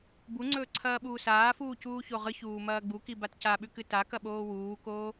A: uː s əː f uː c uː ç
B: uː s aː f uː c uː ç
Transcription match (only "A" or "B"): B